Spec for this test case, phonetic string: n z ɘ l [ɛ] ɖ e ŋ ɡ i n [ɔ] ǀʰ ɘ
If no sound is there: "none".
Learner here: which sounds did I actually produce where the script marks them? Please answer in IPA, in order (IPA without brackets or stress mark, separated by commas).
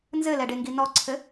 ɛ, ɔ